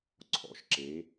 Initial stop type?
click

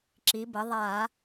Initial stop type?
click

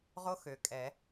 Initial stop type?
ejective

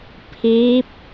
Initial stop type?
aspirated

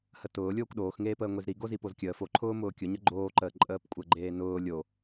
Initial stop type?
plain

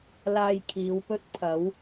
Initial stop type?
aspirated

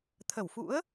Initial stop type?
aspirated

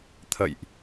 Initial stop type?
aspirated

